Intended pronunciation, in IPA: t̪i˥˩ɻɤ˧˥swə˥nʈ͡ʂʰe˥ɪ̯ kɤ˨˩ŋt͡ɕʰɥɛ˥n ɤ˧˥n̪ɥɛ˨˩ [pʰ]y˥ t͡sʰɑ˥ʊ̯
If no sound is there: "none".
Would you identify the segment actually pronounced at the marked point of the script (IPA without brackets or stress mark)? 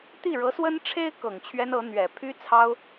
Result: pʰ